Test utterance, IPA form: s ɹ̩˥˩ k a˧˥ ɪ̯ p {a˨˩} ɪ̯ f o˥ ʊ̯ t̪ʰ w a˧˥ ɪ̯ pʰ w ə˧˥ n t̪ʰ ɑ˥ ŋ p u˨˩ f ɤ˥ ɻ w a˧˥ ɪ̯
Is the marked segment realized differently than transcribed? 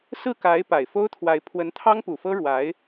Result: no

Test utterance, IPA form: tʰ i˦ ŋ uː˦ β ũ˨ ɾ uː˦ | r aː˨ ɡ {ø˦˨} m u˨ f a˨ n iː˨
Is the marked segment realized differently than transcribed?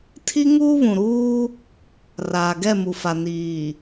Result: yes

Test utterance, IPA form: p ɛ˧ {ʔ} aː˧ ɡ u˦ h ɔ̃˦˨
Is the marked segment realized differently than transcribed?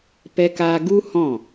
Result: yes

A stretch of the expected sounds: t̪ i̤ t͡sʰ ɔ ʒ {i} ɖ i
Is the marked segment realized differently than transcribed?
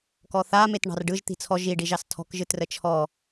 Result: no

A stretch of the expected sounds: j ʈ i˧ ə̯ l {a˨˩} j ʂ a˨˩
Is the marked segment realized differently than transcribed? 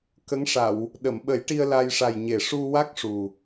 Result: yes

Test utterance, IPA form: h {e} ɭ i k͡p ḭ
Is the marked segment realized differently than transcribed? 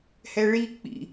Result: yes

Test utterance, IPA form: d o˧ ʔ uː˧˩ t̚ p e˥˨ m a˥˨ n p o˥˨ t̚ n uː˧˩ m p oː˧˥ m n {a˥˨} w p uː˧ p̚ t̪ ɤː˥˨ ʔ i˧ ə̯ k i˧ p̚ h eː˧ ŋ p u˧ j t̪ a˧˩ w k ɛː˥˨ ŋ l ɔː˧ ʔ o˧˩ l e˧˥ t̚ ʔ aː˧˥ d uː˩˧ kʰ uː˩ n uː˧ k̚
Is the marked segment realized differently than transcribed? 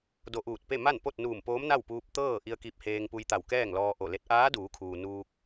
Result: no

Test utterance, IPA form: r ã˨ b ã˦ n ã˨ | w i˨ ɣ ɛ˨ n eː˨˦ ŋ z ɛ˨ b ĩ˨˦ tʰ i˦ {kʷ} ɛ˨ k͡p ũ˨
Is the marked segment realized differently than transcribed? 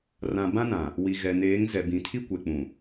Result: no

